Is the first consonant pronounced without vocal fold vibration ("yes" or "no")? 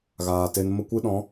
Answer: no